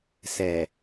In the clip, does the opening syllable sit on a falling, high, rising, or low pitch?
low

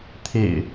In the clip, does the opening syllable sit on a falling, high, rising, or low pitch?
low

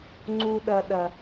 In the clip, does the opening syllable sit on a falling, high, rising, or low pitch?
low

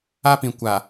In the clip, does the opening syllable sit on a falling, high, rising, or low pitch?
high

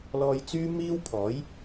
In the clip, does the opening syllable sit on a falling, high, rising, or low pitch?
low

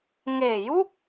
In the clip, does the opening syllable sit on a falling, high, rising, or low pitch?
low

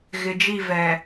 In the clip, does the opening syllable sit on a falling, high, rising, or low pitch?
low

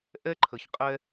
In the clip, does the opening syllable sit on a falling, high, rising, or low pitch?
high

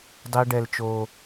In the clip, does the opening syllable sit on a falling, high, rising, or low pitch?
high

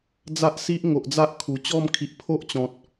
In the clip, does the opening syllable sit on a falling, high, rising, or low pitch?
high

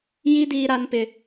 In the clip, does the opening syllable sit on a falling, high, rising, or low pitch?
high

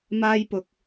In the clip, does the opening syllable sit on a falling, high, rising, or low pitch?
high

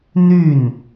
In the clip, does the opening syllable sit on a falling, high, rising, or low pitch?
falling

